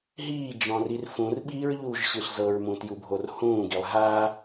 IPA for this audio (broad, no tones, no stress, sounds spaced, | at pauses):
ɦ iː d͡ʒ ɔ̃ r i r f ũ r ɓ iː ɹ ʎ uː ʒ ɕ ɯ ɬ z ɤ ɹ m ũ t j u bʱ o r h ũː ɡ i lˠ ɦ a